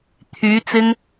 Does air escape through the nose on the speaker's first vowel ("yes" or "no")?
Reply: no